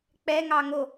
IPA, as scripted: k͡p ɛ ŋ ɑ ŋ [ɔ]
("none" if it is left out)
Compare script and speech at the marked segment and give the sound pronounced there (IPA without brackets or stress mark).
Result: o